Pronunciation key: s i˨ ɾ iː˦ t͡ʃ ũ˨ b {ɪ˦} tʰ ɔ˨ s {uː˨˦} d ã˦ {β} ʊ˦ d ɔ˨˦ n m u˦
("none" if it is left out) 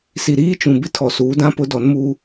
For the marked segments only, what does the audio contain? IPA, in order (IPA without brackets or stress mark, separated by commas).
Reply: ɪ˦, uː˨˦, p